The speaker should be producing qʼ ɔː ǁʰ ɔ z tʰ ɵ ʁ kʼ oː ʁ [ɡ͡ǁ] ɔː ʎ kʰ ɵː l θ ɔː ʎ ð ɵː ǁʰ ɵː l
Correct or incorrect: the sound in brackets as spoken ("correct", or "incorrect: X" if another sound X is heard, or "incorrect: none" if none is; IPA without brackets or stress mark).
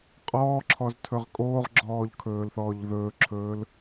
correct